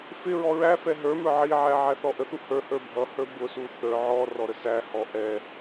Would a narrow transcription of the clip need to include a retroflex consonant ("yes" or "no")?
no